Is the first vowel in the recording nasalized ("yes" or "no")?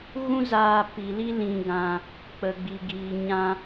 yes